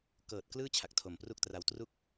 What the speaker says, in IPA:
k ɤː˨˩ t̚ k l ɯː˥˩ t͡ɕʰ a˨˩ k̚ tʰ o˨˩ m p r u˥˩ k̚ t r a˧ w t r u˥˩ k̚

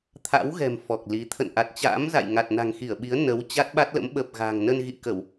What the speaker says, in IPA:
t̪ʰ a̰˧˥ w ɣ ɛ̤˨˩ m f ɔ˨˩ k̚ l i˨˦ t̪ʰ ə̰˧˨ n ʔ a˨˩ t̚ t͡ɕ a̰ː˧˥ m z a̰˧˨ j ŋ a˨˩ t̚ n a̤˨˩ ŋ x i˧˩ ə̯ ɓ i˨˦ ə̯ n ə˨˦ w t͡ɕ a˦˥ t̚ ɓ a˦˥ t̚ l ə̰˧˥ m ɓ ə˨˩ p̚ ɣ a̤˨˩ ŋ n ə˧ n ɣ ḭ˧˨ k ə˧˩˨ w

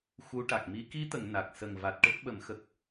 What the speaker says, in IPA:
x u˧˥ ʈ a˨˩ k̚ m i˧˥ k i˧˥ t̪ ə˨˩˨ ŋ n a˨˩ k̚ s ə˨˩ ŋ v a˨˩ t̚ ʈ ə˦˥ k̚ ɓ ə˨˩˦ m x ə˨˩ k̚

